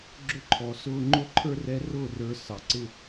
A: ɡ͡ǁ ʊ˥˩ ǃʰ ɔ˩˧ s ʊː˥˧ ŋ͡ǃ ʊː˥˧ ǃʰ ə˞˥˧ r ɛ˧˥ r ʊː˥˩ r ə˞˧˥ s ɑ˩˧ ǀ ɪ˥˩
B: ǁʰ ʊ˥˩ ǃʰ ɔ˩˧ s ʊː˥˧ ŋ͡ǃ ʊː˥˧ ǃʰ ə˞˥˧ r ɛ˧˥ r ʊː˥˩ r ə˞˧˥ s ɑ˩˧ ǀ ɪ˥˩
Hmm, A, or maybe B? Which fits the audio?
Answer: A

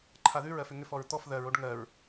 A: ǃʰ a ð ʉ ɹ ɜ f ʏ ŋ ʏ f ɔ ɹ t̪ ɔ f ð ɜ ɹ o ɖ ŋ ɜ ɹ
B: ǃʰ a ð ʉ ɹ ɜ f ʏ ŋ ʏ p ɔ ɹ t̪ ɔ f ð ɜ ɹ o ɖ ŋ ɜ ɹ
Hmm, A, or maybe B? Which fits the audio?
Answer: A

